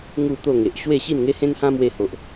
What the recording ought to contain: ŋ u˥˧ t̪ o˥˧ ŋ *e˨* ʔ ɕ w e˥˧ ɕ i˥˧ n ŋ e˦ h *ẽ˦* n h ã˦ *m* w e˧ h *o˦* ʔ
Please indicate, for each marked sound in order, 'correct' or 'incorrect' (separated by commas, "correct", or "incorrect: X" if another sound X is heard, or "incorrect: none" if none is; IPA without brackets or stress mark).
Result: correct, correct, correct, incorrect: o˨